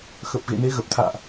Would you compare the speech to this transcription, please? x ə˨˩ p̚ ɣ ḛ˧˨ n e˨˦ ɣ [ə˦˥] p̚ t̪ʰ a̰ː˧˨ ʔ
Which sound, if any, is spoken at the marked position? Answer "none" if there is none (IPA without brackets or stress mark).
ə˨˩